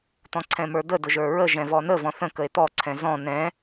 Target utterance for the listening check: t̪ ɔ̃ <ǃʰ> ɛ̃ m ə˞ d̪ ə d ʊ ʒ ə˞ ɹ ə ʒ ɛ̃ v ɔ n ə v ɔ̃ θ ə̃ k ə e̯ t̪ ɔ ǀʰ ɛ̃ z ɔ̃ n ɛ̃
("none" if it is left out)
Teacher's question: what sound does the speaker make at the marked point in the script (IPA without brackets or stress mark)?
ǀʰ